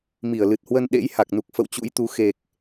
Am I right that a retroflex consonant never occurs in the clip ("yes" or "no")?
yes